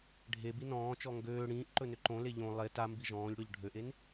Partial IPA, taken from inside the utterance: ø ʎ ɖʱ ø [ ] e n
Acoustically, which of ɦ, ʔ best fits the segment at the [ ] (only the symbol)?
ʔ